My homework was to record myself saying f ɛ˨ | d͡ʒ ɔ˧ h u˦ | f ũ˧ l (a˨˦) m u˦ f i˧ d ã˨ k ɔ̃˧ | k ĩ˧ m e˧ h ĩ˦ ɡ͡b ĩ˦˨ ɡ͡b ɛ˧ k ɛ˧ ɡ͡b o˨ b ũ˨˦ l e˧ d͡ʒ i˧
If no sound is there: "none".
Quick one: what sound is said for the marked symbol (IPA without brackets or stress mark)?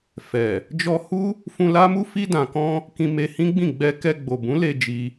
a˦